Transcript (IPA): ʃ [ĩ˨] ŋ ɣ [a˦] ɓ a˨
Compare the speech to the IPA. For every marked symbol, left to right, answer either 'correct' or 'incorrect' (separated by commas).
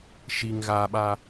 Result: incorrect, incorrect